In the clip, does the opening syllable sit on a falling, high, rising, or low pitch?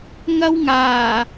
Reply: high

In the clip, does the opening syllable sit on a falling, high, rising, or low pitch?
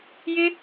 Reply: high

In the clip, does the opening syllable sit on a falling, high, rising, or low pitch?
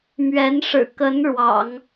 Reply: rising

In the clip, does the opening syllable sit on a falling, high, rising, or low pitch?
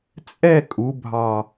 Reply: falling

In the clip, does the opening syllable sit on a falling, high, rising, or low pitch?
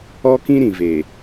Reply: high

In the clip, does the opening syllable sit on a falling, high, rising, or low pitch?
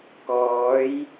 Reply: rising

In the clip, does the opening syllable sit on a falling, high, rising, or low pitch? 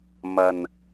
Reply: low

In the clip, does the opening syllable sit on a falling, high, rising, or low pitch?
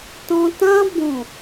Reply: high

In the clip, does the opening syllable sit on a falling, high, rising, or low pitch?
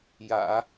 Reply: low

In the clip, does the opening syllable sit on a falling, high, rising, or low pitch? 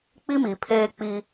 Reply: high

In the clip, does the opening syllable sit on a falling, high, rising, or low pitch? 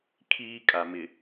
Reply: high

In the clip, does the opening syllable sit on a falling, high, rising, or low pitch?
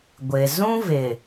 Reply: low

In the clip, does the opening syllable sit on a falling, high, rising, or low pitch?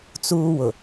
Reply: high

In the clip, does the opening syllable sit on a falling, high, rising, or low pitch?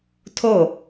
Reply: falling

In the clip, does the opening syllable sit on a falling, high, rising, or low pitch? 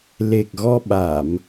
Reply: low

